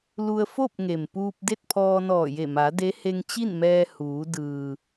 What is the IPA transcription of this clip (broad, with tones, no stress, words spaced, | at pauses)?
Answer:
lu˧ə̯fo˥˨p̚ŋe˩mpuː˧p̚ de˥˨t̚pʰɔː˧nɔː˧˩je˧˩ ma˩˧de˧˥ he˧ŋ t͡ɕi˥˨nmɛː˧ huː˩˧ dɯː˩